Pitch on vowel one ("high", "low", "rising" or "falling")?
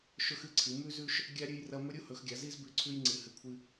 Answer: high